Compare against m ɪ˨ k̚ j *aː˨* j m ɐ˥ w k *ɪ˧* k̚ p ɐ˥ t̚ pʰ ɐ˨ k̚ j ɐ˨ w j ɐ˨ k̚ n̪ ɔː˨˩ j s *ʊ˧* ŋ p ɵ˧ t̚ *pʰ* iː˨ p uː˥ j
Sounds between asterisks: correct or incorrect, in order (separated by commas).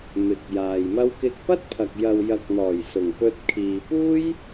correct, correct, incorrect, incorrect